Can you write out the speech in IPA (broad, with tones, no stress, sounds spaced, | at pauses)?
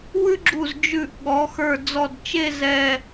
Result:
w ʉ˥ ɡ͡ǁ u˧˩ z d͡ʒ ʉ˧˩ ʔ ɠ ɔ˩˧ x ə˞˧˩ d͡z ɔ˧˩ d t͡ʃ e˥˧ z ɛ˧˩